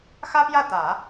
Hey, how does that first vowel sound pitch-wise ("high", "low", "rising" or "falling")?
high